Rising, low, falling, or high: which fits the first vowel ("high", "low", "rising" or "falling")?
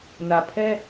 low